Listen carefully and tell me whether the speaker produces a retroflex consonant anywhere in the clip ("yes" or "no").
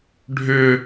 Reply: yes